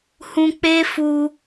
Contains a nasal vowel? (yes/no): yes